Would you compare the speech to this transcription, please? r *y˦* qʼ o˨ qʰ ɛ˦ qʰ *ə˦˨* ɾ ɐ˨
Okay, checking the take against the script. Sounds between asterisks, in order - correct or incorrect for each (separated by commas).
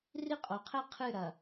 incorrect, incorrect